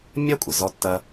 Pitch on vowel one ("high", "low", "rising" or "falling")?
high